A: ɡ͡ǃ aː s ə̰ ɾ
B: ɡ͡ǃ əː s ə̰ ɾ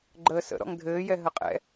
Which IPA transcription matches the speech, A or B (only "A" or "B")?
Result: B